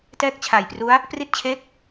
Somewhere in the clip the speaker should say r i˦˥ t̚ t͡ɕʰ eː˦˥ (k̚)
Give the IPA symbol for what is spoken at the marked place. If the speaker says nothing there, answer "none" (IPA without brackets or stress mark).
k̚